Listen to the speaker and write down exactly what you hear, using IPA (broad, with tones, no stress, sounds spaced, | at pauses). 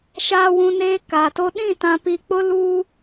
ʃ aː˨ w ũ˨ n eː˦ k aː˨ t o˦ ɗ ĩ˦˨ t ã˨ p i˨ k͡p ʊ˦ l uː˦